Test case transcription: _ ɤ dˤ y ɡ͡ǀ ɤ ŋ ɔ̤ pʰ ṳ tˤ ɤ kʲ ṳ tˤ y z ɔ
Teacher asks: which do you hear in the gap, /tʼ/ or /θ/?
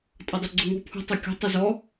tʼ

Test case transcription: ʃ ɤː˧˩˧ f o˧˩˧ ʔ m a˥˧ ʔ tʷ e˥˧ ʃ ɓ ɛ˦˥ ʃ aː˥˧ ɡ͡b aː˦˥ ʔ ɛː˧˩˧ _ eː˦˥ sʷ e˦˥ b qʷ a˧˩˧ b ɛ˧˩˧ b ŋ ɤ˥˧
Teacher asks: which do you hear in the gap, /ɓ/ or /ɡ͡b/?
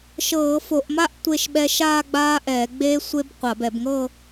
ɡ͡b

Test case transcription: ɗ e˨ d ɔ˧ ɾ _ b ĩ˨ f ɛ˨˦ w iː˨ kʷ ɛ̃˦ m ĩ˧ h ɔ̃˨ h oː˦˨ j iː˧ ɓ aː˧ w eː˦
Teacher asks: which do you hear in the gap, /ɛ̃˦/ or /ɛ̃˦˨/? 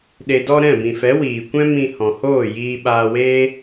ɛ̃˦˨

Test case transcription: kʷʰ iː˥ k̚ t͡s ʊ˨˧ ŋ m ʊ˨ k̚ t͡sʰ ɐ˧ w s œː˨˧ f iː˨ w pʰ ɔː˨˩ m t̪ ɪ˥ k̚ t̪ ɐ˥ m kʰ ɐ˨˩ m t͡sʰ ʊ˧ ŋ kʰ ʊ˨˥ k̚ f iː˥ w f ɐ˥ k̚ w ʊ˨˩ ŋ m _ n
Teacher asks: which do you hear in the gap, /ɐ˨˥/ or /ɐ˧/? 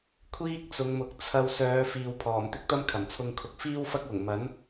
ɐ˨˥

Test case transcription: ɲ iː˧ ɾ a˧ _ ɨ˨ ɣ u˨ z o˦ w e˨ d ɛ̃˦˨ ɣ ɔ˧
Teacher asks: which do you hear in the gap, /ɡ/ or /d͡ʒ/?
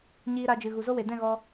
d͡ʒ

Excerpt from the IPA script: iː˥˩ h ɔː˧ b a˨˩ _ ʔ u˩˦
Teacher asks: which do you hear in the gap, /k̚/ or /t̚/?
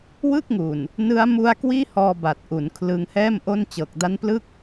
t̚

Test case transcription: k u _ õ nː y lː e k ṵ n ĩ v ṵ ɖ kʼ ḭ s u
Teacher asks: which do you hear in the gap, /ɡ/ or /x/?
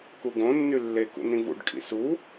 ɡ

